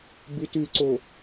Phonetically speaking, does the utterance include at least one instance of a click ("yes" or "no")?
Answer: yes